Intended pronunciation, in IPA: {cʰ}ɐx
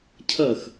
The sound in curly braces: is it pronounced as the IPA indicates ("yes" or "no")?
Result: yes